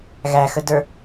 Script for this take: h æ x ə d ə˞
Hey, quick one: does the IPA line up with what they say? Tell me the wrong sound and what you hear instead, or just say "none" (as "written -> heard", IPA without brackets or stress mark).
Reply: h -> ɣ